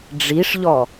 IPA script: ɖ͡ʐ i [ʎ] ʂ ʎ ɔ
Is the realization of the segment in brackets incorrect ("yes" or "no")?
yes